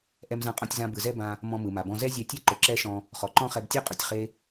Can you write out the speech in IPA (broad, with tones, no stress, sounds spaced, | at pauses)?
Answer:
ʔ ɛ˧ m z ã˧ qʼ ɔ̃˧ tʲ z ã˧ b ɯ˩ z ɛ˥ b ã˧ | m ɔ̃˧ m ɯ˩ m a˩ b ɔ̃˧ z ɛ˥ zʲ ɛ˧ tʲ ɛ˥ ǃ ʊ˩ ǁ ɛ˥ ʃ ɔ̃˧ | χ ɔ˩ ǃ ɔ̃˥ χ ɛ˧ b tʲ ɯ˥ qʼ ʊ˩ tʲ χ e˥